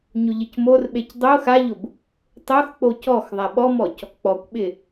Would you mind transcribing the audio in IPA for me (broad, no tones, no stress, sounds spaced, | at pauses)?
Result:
ɲ ʊ ʎ ɪ c m o r ɓ e c dˤ o x a ʎ ʊ b | tˤ o x k͡p o c ɔ x ðˤ a ɓ ɔ m ɔ c | k͡p ɔ kʷ ɓ ɪ